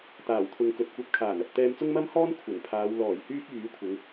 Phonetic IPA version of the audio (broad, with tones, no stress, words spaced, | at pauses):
t̪aː˨˩wt̪ʰʊ˨ŋkɵ˨t̚kʷɐ˧p̚ kʰaː˨˩nɐ˨p̚ t̪ɛː˧mt͡sʊ˥ŋmɐ˥mhɔː˥n kʷʰɐ˨˩n pʰaː˨˧wlɔː˨˩j hyː˥k̚jyː˨˥kʷʰɪ˨˧ŋ